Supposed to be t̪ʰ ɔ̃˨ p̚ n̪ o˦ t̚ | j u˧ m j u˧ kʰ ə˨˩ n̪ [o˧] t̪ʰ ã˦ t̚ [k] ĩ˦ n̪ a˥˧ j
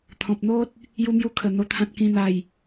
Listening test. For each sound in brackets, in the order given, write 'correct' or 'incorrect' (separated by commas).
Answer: correct, correct